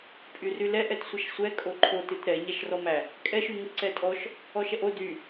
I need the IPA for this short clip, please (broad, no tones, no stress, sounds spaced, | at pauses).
pʼ y r y l ɛ ʔ ɛ t sʷ ʌ ʃ sʷ ɛ kʼ o ǃʰ o t ɨ t ɾ ɛ ɲ æ ʃ r ɔ m æ | kʼ ɛ ʃ y ŋ ɨ ǀ ɛ tʼ ɔ ʃ | ɔ ʃ ɛ ʔ o d y